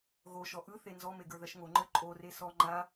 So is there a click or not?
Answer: yes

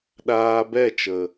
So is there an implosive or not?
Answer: yes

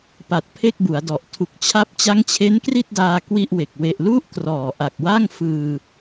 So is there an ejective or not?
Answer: no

